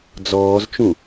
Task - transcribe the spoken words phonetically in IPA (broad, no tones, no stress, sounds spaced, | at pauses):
d͡z ɔː z t͡ʃ ũ